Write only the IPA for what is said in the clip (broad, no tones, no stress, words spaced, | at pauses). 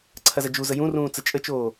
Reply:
ǀʰɐzɐd͡ʒuzə jũrũː t͡sət͡ʃʼət͡ʃoː